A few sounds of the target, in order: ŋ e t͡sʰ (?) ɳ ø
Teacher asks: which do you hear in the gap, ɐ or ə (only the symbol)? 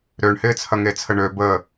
ə